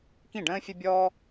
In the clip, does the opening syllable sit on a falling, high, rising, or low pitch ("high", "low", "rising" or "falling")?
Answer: falling